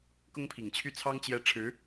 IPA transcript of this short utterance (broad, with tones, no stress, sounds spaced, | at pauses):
k ʊ˥ ŋ pʰ i˨˩ ŋ t͡ɕʰ y˥˩ t͡sʰ ɑ˥ ŋ t͡ɕ j ɛ˥˩ ʈ͡ʂʰ ɻ̩˧˥